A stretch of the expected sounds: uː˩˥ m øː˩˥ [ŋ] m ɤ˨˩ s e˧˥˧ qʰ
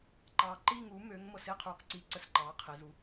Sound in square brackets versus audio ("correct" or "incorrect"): correct